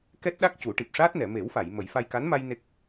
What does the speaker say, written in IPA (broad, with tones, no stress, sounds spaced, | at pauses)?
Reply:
k ɛ˦˥ t̚ ɗ a˦˥ k̚ c u˨˩˦ ʈ i˨˩ p̚ ʂ aː˦˥ t̚ n ɛ˨˩˨ m e˨˩˦ w f a˨˩˨ j m ə˨˩˦ j f a˧ j k a˧˥ n m a˧ j n e˦˥ k̚